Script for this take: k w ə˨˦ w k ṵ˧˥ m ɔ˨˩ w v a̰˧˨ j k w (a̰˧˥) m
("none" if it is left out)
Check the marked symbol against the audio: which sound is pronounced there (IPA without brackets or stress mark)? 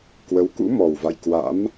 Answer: a̰˧˥